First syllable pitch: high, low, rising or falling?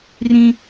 high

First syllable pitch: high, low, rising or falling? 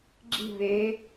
falling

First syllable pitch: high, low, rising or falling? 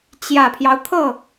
low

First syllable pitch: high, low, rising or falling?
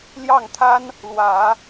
falling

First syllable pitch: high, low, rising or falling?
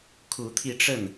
rising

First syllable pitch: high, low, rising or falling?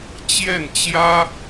falling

